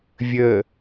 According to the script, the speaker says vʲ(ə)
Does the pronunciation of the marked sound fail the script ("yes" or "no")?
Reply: no